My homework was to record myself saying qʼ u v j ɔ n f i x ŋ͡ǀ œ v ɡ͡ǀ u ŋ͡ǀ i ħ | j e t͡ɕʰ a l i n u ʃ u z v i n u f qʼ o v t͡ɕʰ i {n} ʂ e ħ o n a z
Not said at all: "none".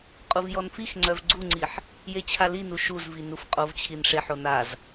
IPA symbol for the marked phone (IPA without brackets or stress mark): n